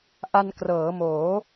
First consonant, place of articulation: glottal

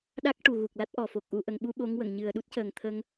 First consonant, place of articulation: alveolar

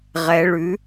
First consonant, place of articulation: uvular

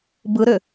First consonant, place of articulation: labial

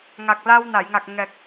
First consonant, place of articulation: velar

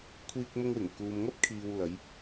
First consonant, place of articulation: velar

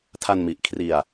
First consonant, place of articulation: alveolar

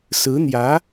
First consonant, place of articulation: alveolar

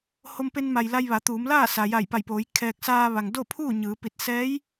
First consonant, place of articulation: glottal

